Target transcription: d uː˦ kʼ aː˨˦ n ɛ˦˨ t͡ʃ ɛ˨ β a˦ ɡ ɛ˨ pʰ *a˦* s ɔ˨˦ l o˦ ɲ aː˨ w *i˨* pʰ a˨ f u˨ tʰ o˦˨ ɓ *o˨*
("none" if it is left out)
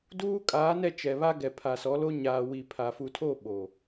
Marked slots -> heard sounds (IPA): a˨, i˨, oː˨

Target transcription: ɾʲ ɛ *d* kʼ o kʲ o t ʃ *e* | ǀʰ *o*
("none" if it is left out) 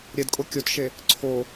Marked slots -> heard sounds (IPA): d, e, o

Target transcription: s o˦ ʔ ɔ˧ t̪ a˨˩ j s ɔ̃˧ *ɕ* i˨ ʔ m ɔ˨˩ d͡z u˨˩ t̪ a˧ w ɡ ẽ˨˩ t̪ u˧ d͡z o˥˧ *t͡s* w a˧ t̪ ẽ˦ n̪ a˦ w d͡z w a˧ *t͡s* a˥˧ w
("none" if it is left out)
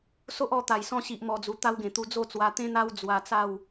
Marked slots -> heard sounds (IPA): ɕ, t͡s, t͡s

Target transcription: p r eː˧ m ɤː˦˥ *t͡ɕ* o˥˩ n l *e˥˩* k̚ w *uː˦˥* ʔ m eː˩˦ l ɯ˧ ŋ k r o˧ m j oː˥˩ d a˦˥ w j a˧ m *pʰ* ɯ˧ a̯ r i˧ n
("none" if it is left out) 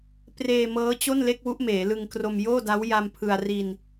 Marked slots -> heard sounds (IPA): t͡ɕ, e˥˩, u˦˥, pʰ

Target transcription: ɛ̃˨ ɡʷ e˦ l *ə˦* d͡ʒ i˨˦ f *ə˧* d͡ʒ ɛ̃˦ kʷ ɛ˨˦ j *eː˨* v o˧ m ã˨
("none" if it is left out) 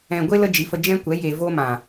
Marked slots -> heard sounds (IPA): ə˧, ə˧, e˨

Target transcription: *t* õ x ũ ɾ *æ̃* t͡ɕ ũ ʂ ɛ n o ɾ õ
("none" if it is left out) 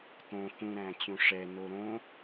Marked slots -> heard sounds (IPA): t, æ̃

